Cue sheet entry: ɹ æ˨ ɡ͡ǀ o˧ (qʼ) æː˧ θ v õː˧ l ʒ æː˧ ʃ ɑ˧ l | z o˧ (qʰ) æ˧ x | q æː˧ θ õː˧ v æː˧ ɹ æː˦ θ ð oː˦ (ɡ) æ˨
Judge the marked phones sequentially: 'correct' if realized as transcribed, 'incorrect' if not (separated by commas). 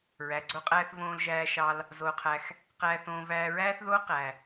correct, correct, incorrect